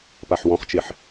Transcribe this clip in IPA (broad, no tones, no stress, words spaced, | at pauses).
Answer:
paħwɔ̃χt͡ʃeħ